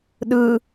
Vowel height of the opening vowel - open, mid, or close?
close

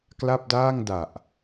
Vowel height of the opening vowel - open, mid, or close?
open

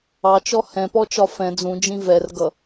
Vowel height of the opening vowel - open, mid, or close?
open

